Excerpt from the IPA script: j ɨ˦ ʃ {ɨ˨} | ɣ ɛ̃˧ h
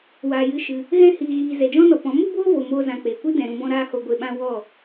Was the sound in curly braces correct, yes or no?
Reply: no